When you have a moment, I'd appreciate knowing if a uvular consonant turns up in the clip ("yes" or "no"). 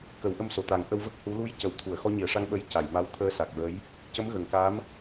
no